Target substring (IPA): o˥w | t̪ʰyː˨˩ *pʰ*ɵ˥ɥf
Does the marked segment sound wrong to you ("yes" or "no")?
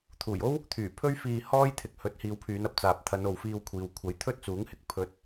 no